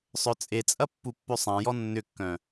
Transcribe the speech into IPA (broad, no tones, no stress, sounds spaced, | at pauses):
sˤ œ t͡sʼ e t͡sʼ ɐ pː u pː ø sˤ ã j ɔ nː ʏ kː œ̃